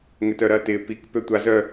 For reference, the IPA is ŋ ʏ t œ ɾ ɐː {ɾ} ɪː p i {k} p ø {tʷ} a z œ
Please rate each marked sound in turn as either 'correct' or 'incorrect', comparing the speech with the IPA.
incorrect, correct, correct

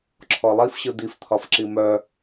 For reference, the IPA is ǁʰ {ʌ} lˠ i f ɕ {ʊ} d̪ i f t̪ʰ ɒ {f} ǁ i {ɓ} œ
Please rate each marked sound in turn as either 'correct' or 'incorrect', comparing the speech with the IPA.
incorrect, incorrect, correct, incorrect

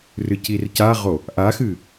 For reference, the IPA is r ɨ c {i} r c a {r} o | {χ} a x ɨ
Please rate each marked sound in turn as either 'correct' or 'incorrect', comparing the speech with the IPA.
correct, incorrect, incorrect

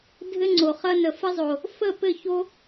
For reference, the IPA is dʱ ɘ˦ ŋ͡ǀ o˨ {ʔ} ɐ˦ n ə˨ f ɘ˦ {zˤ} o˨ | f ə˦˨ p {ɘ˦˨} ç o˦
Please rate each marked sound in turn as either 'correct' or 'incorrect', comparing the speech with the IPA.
incorrect, correct, correct

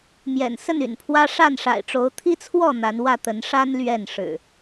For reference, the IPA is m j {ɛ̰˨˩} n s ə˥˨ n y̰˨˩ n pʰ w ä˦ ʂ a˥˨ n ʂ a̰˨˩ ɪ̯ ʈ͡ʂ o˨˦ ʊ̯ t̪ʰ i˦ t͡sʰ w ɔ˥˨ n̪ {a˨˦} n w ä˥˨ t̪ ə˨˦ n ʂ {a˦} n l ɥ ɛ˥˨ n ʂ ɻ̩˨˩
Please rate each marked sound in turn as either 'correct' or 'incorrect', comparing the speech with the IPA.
correct, correct, correct

